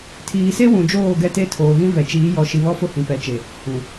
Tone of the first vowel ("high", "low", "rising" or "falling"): low